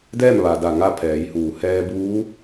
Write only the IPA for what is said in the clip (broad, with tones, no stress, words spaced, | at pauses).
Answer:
dɛː˥˨mʋa˩da˧˩ ŋa˥˨pʰɛː˩˧jhuː˩ hɛː˧buː˧˥